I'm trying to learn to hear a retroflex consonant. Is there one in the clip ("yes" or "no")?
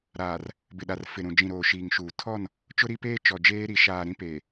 no